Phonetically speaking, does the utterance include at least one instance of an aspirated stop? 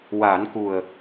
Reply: no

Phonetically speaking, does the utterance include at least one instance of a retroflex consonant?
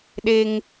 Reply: no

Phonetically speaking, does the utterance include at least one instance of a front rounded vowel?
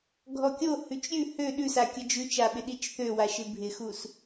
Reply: yes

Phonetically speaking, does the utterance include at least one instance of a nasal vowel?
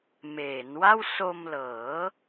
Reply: no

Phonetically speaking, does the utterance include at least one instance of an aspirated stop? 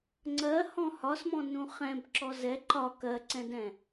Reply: no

